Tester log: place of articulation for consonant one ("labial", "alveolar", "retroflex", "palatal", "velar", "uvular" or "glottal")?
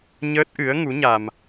palatal